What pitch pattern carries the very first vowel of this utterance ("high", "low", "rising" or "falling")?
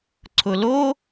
low